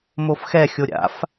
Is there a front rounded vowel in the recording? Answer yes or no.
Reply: no